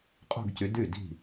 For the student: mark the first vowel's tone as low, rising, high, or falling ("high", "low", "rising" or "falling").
falling